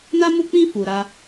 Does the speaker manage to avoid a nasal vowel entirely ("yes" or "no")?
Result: no